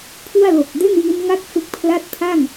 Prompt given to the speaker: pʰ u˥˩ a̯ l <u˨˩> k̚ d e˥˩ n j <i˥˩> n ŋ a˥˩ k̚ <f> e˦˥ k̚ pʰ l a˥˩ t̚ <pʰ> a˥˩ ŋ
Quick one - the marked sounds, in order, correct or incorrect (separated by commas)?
incorrect, incorrect, correct, correct